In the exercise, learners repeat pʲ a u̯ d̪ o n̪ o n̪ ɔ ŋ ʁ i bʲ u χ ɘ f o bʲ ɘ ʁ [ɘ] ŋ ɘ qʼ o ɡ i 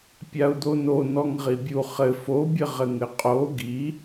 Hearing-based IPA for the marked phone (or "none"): ɘ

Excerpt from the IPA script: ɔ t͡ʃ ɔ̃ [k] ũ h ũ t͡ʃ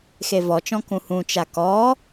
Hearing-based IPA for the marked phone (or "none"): k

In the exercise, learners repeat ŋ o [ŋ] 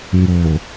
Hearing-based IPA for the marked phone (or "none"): none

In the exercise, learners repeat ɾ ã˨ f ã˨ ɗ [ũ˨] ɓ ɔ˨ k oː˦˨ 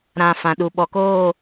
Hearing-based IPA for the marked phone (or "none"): u˨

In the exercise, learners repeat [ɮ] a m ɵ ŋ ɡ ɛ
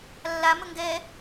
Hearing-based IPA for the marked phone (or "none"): lː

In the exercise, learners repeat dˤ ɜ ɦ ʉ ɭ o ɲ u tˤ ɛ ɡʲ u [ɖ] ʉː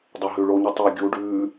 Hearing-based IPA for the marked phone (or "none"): ɖ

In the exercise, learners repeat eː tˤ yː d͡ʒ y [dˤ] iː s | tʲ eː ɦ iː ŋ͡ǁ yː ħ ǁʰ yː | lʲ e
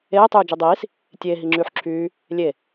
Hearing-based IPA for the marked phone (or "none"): dˤ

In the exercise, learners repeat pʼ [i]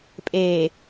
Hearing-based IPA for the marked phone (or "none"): e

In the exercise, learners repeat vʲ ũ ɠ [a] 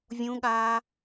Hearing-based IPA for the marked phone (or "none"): aː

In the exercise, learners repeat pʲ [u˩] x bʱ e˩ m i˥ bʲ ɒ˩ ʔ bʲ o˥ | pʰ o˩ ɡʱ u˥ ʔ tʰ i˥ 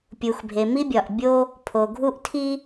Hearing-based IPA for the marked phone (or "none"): u˩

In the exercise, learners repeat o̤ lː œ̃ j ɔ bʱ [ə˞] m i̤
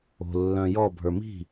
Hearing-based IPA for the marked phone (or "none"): ə˞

